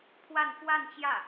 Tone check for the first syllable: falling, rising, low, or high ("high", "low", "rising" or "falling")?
falling